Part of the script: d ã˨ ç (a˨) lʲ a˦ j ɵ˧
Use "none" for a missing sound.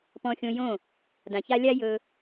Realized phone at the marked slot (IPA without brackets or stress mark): a˧